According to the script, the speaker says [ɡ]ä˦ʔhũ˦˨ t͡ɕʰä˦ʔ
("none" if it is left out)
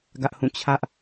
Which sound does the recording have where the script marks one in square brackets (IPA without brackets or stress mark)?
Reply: ɡ